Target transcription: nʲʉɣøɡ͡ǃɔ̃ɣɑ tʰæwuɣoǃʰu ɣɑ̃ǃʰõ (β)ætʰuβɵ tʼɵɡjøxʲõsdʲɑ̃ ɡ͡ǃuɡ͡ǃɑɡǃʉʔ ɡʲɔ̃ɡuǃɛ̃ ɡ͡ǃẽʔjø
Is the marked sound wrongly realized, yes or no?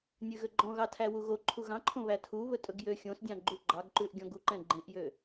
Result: no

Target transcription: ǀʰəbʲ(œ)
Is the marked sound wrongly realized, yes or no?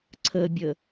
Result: yes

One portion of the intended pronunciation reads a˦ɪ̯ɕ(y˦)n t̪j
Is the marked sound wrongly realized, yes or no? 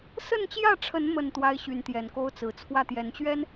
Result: yes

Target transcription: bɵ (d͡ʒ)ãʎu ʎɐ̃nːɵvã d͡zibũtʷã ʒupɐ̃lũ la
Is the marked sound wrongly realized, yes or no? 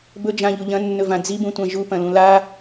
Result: no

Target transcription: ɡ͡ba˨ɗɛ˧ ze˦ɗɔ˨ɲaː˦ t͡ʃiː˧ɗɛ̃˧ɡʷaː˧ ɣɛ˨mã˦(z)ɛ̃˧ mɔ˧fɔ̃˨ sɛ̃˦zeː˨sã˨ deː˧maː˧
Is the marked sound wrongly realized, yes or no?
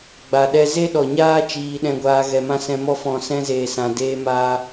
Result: yes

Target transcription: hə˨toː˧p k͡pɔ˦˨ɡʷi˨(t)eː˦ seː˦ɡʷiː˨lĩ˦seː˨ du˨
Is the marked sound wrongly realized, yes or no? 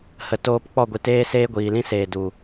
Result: no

